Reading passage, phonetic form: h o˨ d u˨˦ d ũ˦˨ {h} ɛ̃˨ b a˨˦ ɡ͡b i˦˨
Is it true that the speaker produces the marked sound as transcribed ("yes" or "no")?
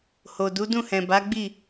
yes